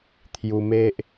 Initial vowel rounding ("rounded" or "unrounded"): rounded